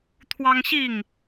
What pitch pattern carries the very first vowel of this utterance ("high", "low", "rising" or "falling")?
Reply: high